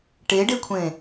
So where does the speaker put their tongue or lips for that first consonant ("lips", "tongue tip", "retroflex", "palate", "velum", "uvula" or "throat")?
retroflex